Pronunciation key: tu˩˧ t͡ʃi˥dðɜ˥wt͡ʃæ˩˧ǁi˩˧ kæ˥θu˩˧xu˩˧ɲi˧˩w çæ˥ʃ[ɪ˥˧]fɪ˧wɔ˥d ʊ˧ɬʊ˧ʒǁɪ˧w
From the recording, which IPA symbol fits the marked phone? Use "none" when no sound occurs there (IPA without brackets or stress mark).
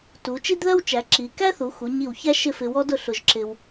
ɪ˥˧